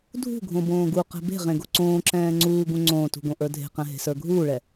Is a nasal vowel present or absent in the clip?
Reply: present